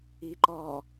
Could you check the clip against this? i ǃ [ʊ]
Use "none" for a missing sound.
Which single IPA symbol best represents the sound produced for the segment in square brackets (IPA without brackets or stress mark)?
ɔ